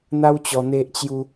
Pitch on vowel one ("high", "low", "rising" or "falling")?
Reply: high